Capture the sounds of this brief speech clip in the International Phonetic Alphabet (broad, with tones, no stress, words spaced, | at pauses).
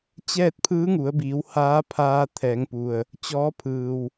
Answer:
t͡ɕɛː˥˨t̚pʰɯː˧˥ŋu˩˧ə̯biː˩˧w haː˧˥pʰaː˧ t̪ʰɛː˩˧ŋpu˩ə̯ | t͡ɕɔː˧˥pʰɯː˩w